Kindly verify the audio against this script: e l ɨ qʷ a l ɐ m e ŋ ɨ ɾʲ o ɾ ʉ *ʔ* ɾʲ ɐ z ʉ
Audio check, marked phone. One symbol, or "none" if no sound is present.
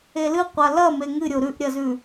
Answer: ʔ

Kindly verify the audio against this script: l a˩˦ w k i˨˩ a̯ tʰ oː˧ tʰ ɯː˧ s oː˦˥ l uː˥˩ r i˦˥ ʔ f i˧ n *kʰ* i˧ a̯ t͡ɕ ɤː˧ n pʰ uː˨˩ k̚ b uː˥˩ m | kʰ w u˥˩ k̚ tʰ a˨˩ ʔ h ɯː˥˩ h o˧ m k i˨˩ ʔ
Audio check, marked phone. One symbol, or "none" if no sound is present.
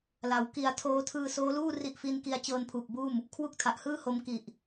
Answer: k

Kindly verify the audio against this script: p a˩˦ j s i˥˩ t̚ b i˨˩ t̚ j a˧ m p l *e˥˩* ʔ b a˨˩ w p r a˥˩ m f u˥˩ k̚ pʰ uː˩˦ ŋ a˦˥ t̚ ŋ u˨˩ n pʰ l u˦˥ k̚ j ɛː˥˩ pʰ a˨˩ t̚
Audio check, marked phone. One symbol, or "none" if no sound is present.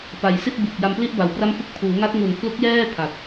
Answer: i˥˩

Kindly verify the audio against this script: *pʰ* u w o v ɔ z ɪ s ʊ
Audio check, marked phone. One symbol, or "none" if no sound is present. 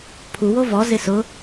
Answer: pʰ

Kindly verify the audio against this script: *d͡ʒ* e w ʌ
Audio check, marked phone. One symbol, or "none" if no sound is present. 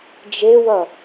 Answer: d͡ʒ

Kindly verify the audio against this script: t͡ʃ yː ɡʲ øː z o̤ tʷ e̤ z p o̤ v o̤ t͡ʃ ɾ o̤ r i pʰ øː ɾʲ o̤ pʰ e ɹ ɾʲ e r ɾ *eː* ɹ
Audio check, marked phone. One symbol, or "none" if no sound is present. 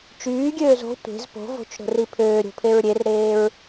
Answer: eː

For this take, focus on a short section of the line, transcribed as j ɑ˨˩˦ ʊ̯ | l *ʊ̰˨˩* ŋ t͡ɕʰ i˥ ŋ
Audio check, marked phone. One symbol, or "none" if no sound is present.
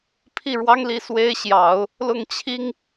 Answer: ʊ˥˩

